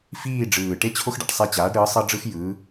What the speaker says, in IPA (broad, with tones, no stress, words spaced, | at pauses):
fiː˦˨ɖ͡ʐɯː˨˩ ʈe˦t͡ɕʰo˦xɖa̰˩˧ʈ sˤɛ˦˨t͡ɕaː˩˥ɖɾɯː˩˥ sˤɤ˦ɖ͡ʐɯ˦xjɯː˩˧